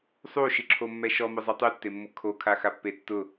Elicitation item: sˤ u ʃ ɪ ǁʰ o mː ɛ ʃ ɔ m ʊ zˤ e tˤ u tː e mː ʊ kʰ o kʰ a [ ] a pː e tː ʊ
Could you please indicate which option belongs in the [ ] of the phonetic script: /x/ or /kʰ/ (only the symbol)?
x